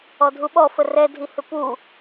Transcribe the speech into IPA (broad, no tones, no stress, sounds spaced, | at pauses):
ɔ dʱ u ɓ ɔ f ə r ɛ dʱ i h ʏ p u